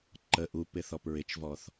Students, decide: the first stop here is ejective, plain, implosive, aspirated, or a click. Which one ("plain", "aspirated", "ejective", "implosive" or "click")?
click